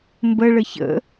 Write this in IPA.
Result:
mbə ɭəçə̰

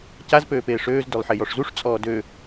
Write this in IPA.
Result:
caz pøːpeːʂøːz dølˠħejɔʂzuʂ t͡sʼɔːdø

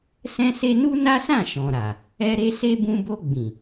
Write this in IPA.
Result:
sɛ̃˦se˦ nu˦na˦sã˦˨ ʃɔ̃˨ɾa˨ | ɛ˦ ɾe˦se˦ bũ˧bo˧ ɡ͡bĩ˨

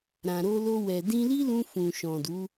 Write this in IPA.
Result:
ɾã˨ɾo˧lo˧ wɛ˨ dĩ˧li˦lũ˧ fũ˨ʃɔ̃˨du˨˦

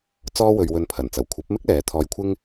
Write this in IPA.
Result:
t͡sɔː˥wɵ˧ɥwɵ˧n pʰɐ˨˩nt͡sɐ˨˩w kʷʰɐ˨˥p̚mɪ˥k̚ lɛː˨˥t̪ʰɔː˧jkʷʰɪ˥ŋ

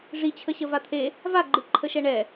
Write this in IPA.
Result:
ʐit͡ɕʰə ɕəvat̪ʰe | vaɡ͡ǃɨ ǃʰəʃɛɳɛ

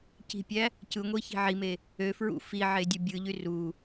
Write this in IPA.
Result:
ci̤pʲæ | cɯŋʷi çi̤ʕime | ø fɹṵ fiʕe dʲubʲɯʎy ru

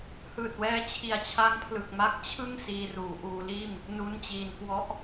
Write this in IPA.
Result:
hɯː˨˩t̚wɛː˧t͡ɕʰi˨˩a̯ t͡ɕʰa˦˥ŋpʰlɯ˨˩k̚ma˦˥k̚ t͡ɕʰɯ˥˩ŋ siː˧ruː˩˦ʔuː˧liː˥˩m | nu˦˥nt͡ɕiː˧n kwɔ˦˥ʔ

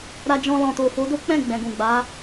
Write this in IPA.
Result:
ɾa˧d͡ʒɔ̃˧ lɔ̃˨to˨fo˨˦ do˦k͡pɛ̃˦˨ ɡ͡bɛ̃˨ɡũ˨ ɡ͡ba˨˦

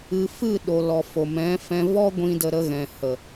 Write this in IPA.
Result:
ɨ˨ fɨ˦˨ɗo˨ lɔ˨ fo˨mɛ̃˨˦fɛ̃˧ vɔ˦ɡʷĩ˧ də˧ ɾə˧ɣɛ̃˨ hə˨

